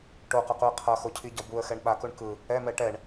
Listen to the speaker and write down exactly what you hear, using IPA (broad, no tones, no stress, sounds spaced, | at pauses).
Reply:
ʈ o q ʌ q u ə̯ qʰ ʌ x o cʰ i ɟ ʌ b u ə̯ x ɛ ɳ ɓ a k u ɳ k ɯ | ɛ m ɛ ʈ ɛ ɳ